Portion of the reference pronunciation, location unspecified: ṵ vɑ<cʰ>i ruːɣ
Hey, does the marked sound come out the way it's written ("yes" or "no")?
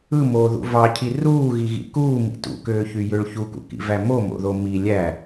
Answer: yes